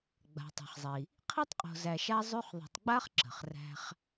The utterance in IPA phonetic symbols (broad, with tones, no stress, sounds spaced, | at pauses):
ɡ͡b a̤˩ tˤ æ̤˩ χ zˤ i˩ | qʰ i˥ tˤ qʼ o̤˨ z æ˨ ʃ a˦ zˤ y˦ χ ðˤ i̤˨ tˤ ɡ͡b a˥ χ ǁ ə̤˩ χ r æ̤˦ χ